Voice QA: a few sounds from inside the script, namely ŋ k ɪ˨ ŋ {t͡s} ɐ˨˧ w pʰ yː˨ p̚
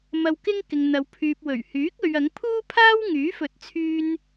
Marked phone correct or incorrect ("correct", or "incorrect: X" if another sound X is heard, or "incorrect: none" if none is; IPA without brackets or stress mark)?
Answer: incorrect: n̪